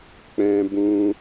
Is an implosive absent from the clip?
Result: yes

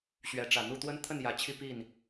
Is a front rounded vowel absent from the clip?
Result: yes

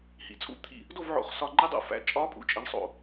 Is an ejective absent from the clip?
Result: no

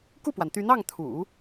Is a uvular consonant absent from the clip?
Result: yes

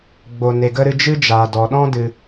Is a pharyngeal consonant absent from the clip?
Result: yes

